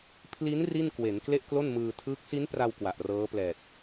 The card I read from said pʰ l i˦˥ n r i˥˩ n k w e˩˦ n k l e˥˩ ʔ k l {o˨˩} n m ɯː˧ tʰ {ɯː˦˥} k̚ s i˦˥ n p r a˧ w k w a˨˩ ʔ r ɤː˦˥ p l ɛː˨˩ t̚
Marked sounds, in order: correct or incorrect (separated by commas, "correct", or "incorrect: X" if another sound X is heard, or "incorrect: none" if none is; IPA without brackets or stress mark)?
incorrect: o˥˩, correct